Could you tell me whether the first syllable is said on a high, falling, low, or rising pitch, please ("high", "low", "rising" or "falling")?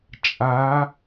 rising